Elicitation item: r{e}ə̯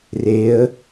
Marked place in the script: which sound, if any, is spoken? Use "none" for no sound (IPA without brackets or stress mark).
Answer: e